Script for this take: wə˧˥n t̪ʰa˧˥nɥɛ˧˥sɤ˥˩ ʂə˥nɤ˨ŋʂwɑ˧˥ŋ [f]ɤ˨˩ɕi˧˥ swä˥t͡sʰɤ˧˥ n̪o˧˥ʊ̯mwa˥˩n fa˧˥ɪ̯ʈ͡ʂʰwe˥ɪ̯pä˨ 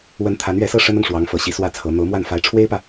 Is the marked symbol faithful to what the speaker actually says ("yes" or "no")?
yes